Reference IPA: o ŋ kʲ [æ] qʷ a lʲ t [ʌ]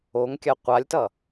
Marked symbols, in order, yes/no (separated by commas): no, yes